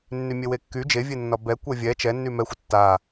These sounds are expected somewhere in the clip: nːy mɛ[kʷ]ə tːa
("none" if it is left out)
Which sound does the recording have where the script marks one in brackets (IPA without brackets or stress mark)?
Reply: xʷ